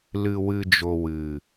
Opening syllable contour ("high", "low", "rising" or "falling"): low